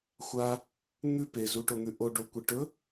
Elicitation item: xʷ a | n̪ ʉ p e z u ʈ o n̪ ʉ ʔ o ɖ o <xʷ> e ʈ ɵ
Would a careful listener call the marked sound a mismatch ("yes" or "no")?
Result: yes